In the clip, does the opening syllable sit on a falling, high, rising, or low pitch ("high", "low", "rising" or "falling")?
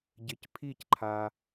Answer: rising